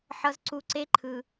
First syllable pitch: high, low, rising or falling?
low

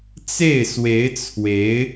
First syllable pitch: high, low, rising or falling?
falling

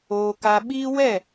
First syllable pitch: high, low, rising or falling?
high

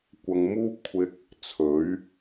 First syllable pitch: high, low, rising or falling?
low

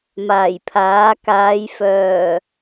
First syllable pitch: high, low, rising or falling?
low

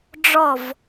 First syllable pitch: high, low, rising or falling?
falling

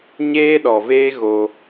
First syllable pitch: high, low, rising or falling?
high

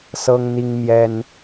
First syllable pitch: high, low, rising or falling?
high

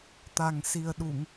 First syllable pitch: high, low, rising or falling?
low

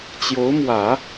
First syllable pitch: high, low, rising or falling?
rising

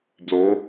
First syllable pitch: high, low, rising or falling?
rising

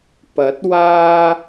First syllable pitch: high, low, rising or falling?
rising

